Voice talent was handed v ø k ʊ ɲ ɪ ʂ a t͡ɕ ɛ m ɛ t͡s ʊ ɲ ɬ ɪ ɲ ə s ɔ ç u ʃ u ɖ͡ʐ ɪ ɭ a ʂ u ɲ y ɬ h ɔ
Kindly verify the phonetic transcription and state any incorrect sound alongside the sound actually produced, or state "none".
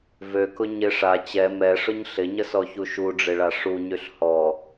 t͡s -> ʂ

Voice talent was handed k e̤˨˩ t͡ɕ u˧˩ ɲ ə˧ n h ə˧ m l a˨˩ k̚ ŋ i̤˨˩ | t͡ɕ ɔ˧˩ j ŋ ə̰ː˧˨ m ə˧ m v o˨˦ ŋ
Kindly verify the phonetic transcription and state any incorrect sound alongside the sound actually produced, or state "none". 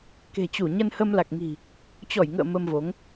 none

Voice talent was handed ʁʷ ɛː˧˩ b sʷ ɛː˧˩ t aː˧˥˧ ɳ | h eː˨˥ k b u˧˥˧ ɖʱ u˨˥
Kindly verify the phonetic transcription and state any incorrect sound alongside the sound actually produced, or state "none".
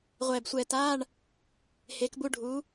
none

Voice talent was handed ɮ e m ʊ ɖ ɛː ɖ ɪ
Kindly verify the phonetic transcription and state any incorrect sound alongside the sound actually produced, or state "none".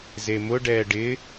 ɮ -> z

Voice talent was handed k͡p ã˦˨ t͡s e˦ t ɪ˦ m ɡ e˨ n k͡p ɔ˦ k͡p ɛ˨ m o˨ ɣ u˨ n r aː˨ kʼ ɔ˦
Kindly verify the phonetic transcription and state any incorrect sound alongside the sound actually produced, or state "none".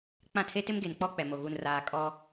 t͡s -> tʰ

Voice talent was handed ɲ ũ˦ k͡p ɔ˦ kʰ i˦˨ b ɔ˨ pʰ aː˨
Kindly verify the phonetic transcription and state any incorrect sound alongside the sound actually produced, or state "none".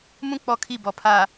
ɲ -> m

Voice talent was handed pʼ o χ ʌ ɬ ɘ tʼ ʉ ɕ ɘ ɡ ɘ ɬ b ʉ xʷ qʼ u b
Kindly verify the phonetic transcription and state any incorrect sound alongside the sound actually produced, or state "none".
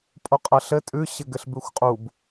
χ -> qʼ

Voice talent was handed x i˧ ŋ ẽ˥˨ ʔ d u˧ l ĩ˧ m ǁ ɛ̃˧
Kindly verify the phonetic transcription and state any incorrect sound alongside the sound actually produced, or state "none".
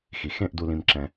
ŋ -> x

